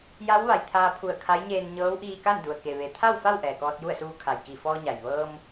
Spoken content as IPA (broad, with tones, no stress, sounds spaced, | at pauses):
j a˧˥ w ʋ a˩ j t̪ʰ aː˧ pʰ u˧˩ ə̯ kʰ a˧˥ j ɲ eː˧ n ɲ ɤː˧˥ w ʔ iː˧ k a˥˨ n d u˩ ə̯ k e˩ ʋ e˩˧ t̪ʰ a˥˨ w f a˥˨ w ʔ ɛː˩ k ɔː˧ t̚ j u˥˨ ə̯ s uː˧ kʰ a˩ j k i˧˩ f ɔː˧ ɲ a˩ j ʋ ɤː˧ m